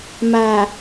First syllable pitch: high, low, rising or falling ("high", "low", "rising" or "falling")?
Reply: low